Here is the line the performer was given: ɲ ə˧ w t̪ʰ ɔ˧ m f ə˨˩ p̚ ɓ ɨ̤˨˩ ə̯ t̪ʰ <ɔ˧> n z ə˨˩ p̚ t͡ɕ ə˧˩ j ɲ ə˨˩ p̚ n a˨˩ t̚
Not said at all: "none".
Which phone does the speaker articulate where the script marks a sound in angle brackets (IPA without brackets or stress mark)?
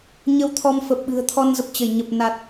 ɔ˧